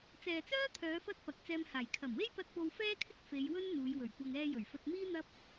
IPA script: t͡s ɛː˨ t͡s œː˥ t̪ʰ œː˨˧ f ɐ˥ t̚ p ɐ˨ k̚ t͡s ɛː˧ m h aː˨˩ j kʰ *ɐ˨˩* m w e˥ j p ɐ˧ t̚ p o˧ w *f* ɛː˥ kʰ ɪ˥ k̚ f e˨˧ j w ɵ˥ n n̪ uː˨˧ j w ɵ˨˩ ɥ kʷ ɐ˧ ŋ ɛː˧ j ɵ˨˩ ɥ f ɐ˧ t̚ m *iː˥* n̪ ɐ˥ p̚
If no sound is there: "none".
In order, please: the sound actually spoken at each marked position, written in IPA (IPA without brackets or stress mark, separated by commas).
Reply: ɐ˨˩, f, iː˥